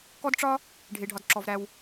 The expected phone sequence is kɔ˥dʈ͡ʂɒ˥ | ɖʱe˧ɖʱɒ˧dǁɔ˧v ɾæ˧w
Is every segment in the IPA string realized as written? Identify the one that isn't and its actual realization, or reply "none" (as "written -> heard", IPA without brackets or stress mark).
none